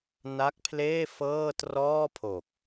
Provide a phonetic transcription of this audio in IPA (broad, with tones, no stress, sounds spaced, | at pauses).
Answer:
n a˦˥ k̚ pʰ l eː˥˩ f ɤː˥˩ t r ɔː˥˩ pʰ o˨˩ k̚